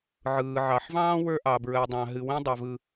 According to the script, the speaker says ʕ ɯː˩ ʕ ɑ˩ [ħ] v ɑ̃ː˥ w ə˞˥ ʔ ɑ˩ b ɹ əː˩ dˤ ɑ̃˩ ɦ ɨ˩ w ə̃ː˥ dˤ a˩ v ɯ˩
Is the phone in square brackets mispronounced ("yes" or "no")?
no